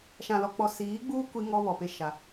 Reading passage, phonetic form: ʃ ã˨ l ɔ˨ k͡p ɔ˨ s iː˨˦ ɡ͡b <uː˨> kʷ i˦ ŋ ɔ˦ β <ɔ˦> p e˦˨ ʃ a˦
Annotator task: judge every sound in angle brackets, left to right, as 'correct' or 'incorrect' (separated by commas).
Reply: incorrect, incorrect